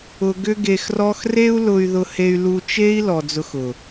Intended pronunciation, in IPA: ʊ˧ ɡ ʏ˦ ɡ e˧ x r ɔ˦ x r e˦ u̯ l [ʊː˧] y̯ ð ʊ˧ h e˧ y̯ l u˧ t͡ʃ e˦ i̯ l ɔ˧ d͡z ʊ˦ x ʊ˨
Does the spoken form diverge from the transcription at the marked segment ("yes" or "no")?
yes